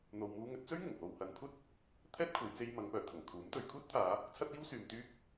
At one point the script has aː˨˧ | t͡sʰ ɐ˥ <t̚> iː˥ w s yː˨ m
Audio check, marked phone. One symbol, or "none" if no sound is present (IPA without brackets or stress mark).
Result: t̚